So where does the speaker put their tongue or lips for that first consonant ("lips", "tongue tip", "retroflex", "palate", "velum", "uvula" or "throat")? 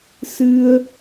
tongue tip